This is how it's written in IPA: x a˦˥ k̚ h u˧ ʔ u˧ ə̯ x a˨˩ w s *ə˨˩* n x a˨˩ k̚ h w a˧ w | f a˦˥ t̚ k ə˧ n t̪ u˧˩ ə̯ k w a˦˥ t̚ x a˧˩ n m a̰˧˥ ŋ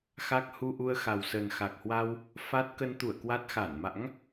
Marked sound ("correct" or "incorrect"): correct